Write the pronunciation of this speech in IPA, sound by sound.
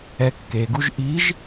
ɛ kː e ɡ u ʒ ʔ i ʒ

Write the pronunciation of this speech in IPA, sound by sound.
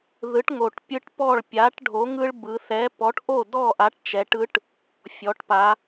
ð ɯ˨˥ ʈ ŋ o˨˩ ʈ pʲ ɯ˦ ʈ p ɔ˥˨ ɭ pʲ a˨˥ ʈ ɖʱ o˨˥ ŋ ɯ˦ ɭ b ɯ˩˧ θ ɛ˨˥ p ɔ˨˥ ʈ ʔ o˥˨ d ɔ˥˨ ʔ a˨˥ ʈ t͡ʃ ɛ˩˧ ʈ ɯ˨˥ ʈ | fʲ ɔ˩˧ ʈ p a˩˧

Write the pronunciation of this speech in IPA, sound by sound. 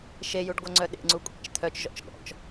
ʃ e j u ɖ ɡʷ œ ŋ͡ǀ œ ɗ ḛ ŋ͡ǀ u kʷʼ ḛ t͡ʃ t̪ʰ œ t͡ʃ ʒ ɔ̰ t͡ʃ ɠ ɔ̰ t͡ʃ

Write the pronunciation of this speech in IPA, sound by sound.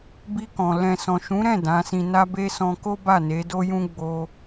b i˧ k ɔ̃˨ l ɛ̃˨ s ɔ̃˨ ʃ ũ˨˦ ɾ ɛ̃˦˨ d ã˨˦ s ĩ˧ n a˦ b e˦ s ɔ̃˧ k o˦ b a˦˨ n e˨˦ d o˦ j ũ˦ ɡ͡b o˧

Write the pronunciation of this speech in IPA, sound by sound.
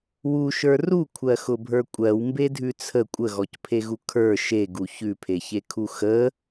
w u ʃ ə˞ r u kʷʰ ɜ x ʊ bʱ ə˞ kʷʼ ɜ w m b e dʱ ʉ t͡sʰ ə kʷʼ ə ɣ ɔ c pʰ e ɣ u kʰ ə˞ ʃ e ɡ u ç ʉ pʰ e ç e kʰ u x ə

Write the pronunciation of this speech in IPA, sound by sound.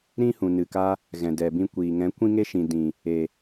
ɾ ĩ˦ h ũ˨ n ɨ˨ k a˧ | ɣ ɛ̃˨ d ɛ˨ b ĩ˧ kʷ iː˨ ŋ ɛ̃˨˦ kʷ ĩ˦ ŋ e˦ ʃ ĩ˨ d ĩ˨ | e˨

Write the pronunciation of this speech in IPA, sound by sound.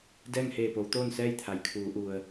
d ɛː˥˨ ŋ h eː˧˩ p o˩˧ w t̪ oː˥˨ n s ɛː˥˨ j t̪ʰ a˩ j kʰ uː˩˧ ʔ u˩ ə̯

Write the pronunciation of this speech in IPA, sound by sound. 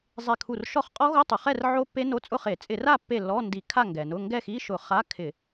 zˤ e˧˩ kʰ u˧˩ r ʃ ɔ˥˨ χ qʼ ɔ˦˥ ɣ o˧˥˧ tˤ u˩ χ ɛ˥˨ r ʕ o˦˥ pː e˦˥ n o˧˥˧ t͡sʼ ʊ˥˨ χ e˧˩˧ t͡sʼ ɪ˧˩˧ r a˥˨ pː e˧˩ l ɔ˧˥˧ n d i˧˩˧ kʰ a˥˨ ŋ ɡ ɛ˩ n ʊ˧˥˧ ŋ ɡ ɛ˥˨ x i˧˥˧ ʃ ʊ˧˩˧ χ a˧˥˧ kʰ ɪ˧˩˧

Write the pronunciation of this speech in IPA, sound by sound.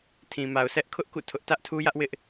tʰ ĩ˨ m a˨ ʊ̯ sʰ ɛ˦ ʔ kʰ ʊ˦ ʔ k ṵ˦˨ tʰ ʊ˦ ʔ t ä˦ ʔ tʰ u˦ j ä˦ ʔ w ɪ˦ ʔ

